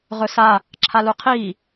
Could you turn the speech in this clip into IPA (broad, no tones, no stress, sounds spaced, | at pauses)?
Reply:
ʁ ɵ s a | ǁʰ a l u qʰ iː